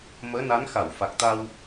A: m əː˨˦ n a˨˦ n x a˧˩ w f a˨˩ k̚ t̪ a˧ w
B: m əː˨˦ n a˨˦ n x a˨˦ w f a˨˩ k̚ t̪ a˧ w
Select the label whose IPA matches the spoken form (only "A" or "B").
A